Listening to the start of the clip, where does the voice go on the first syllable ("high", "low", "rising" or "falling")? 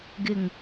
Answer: low